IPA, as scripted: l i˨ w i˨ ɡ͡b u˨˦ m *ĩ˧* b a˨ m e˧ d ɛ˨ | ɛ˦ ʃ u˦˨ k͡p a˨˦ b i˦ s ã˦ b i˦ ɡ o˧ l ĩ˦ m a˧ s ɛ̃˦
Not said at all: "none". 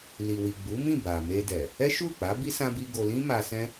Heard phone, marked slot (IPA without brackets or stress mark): ĩ˦˨